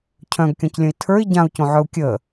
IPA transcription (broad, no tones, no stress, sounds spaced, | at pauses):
cʰ œ̃ ɡ kʲ ɔ̃ c lʲ ə̃ i̯ tʰ ə˞ i̯ ɟ ã u̯ c õ ʕ œ u̯ kʲ ə